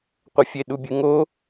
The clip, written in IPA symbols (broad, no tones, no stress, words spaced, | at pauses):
qʷɛfʲeɗubʲɨ ŋo